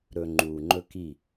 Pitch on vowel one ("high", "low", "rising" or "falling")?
low